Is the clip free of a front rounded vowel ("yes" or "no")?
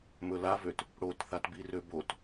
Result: no